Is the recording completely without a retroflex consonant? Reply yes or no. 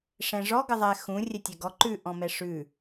no